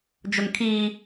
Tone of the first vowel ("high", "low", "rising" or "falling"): high